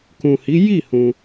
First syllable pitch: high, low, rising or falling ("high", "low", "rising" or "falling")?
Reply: low